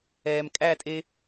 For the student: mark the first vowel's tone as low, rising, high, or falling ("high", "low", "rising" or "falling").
low